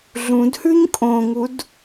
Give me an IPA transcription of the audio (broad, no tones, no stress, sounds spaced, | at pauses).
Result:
ɮ ũ d h ʉ ɲ kʼ õ ŋ u d